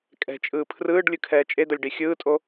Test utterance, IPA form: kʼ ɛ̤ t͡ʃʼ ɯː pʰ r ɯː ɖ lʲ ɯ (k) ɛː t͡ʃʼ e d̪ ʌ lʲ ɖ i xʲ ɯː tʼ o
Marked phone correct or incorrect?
incorrect